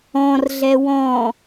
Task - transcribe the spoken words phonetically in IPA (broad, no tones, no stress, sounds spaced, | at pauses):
ɔ̃ r ɮ ɛ w ɔ̃